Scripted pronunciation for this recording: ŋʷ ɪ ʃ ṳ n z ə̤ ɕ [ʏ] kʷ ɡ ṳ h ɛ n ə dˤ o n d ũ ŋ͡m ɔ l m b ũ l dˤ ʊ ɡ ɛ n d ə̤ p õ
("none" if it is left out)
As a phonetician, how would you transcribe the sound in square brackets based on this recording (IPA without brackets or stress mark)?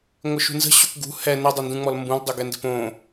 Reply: ʏ